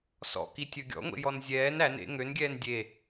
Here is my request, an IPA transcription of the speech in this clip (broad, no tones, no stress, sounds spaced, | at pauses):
s ɔ̰ k i tʲ ɵ ɡʲ ɔ̰ ŋʷ ḛ j ɔ n zʲ ɛː n æ n ḛ ŋ ø n ɡʲ ɛː n dʲ e